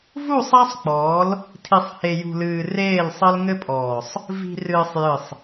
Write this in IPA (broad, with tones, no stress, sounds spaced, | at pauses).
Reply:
v u˦˨ sˤ a˦ sˤ k͡p ɔː˨˦ l | tʰ i˨ sˤ h e˨ j ṳ˨ l ɨː˨ r eː˦˨ l sˤ ɘ˦ l ŋ ɘ˦ pʼ ɔː˨ sˤ | v i̤˨ r ɨː˨ sˤ j ɨ˨ sˤ